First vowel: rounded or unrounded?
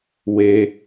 unrounded